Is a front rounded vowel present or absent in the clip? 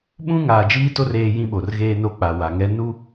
absent